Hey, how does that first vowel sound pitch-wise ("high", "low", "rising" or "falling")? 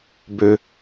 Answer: low